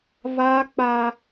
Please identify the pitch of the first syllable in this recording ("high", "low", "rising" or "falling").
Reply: high